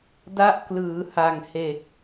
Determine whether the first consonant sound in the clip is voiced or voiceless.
voiced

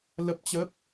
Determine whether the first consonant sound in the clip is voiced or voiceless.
voiced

